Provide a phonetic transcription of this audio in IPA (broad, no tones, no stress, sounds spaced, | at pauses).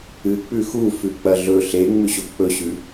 ɨ k͡p ʉ x u f ʉ k͡p ɐ ɮ ɵ ɬ e ŋ͡m ʉ ɕ o ɡ k͡p ɵ ɕ ʉ